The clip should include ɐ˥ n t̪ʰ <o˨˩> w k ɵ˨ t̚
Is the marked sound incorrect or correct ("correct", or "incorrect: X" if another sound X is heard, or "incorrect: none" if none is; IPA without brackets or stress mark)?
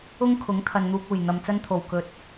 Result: correct